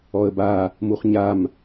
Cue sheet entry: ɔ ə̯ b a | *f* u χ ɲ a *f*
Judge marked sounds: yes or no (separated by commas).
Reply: no, no